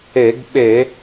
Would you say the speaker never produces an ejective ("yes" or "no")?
yes